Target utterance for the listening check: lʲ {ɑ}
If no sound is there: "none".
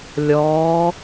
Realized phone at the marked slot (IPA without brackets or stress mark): ɔ